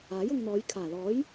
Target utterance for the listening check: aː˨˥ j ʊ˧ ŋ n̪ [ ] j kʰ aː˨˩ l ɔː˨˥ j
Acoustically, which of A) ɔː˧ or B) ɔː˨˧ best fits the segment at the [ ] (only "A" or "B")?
B